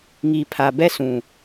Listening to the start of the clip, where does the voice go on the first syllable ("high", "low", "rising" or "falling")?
low